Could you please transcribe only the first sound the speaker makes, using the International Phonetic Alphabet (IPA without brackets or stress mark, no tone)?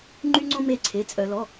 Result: ŋ͡ǃ